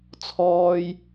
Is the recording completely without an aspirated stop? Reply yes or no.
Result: no